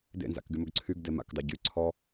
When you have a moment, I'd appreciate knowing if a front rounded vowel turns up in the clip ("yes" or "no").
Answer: yes